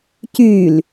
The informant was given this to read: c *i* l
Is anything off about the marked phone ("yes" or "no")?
yes